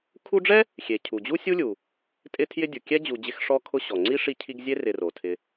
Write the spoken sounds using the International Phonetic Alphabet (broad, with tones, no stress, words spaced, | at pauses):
kʰu˦ɖ͡ʐɛ˥ | xʲe˩cʰu˩d͡ʑu˥ sʲu˥lʲu˩ | tʼɪ˦tʰjɪ˦dʲu˩ kʲɛ˥d͡ʑu˨d͡ʑɪ˦x ʂɔ˦kʰʊ˦ɕɔ˩ ŋ͡ǀi˥ʂi˦cʰi˦ɡzʲe˥ rɪ˨ro˩ tʰɪ˨